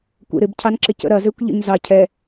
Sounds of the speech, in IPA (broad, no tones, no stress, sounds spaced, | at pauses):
kʷ ḛ ɾ ɪ b cʰ ɑ n ǁ ɪ c ə̰ ɾ ɐ z e kʷ ʎ ə̰ ɲ z ɑ cʰ ɛ